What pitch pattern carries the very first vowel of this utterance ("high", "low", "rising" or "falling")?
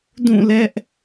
falling